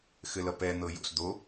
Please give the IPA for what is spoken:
x ɘ l ʌ p ɛ n̪ ɤ j o̰ s d̪ o

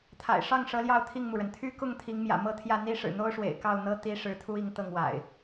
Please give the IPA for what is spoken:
t̪ʰ a̰˨˩ ɪ̯ ʂ ɑ˥˨ ŋ ʂ ɤ˨˦ l j ɑ˥˨ ʊ̯ t̪ʰ i˥˨ ŋ m u˩ ɻ ə˩ n t̪ʰ y˦ k ʊ˥˨ ŋ t̪ʰ i˨˦ ŋ m j ä̰˨˩ m ɤ˥˨ t̪ʰ j ä˥˨ n̪ i˦ ʂ ɻ̩˨˩ n̪ o˦ ʊ̯ ʂ w ḛ˨˩ ɪ̯ k ɑ˥˨ ʊ̯ n̪ ɤ˦ t̪ i˦ ʂ ɻ̩˨˦ t̪ʰ u˦ i˨˦ ŋ t̪ ɤ˥˨ ŋ w a̰˨˩ ɪ̯

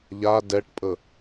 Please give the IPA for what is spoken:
ʎ a d ɛ ʈ pʼ ə

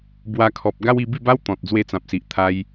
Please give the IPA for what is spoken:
b w a˧ kʰ ɔ˨ p̚ ɡ a˦ w i˧ b i˥˧ b a˦ w t̪ ɔ̃˨ t̚ d͡z w e˧ t͡s ã˨ p̚ s i˨ ʔ t̪ʰ a˧ j

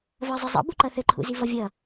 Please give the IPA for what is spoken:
v ɜ zˤ i zˤ ə̰ b u ǃ ʌ θ ɘ ǃʰ ṵ z i v ʌ vʲ ʌ

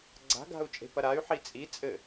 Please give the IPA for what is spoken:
ɡ͡ǀ a̤ ɡ a̤ u̯ t͡ʃʼ e̤ p ɐ ɾ a y̯ ħ i t͡sʼ i t͡sʼ ɘ

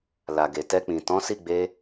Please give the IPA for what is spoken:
l a˨ ɡ e˨ t ɛ˧ k͡p ĩ˨ t ɔ̃˨˦ s i˦˨ ɡ͡b e˧

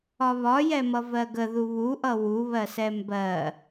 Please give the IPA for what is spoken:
ɒ β ɒ j ɛ m ʌ v ɜ ɡ ə ð u β u ʔ ʌ w u β ɜ s ɛ m b ɜ

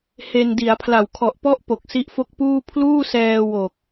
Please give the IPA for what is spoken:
h e˧ n d i˩˦ a̯ pʰ l a˨˩ w kʰ ɔ˨˩ ʔ p ɔ˦˥ ʔ p o˨˩ k̚ s i˦˥ ʔ f o˥˩ k̚ p uː˥˩ pʰ l uː˥˩ s ɛː˧ w o˨˩ k̚

